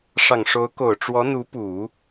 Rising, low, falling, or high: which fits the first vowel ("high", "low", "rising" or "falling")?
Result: low